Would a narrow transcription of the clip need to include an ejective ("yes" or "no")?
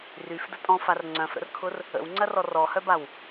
yes